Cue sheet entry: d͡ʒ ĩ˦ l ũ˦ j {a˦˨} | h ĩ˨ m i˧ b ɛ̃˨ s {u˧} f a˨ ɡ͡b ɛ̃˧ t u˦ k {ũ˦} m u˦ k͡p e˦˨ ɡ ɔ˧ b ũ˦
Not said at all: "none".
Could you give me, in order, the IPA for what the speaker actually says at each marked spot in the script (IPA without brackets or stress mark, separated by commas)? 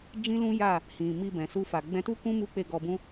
a˦˨, u˧, ũ˦